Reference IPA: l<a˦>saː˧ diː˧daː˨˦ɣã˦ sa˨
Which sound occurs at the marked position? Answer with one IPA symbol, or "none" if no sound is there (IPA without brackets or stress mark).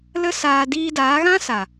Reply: ə˦